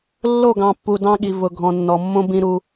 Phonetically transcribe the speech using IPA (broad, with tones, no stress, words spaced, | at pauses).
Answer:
lːo˦˨ɡɑ̃˨pːu˨ dɑ̃˦ɠi˨ vʊ˨ ɡʱɔ̃˨nːɔ˨mːõ˦ bĩ˦ɾu˦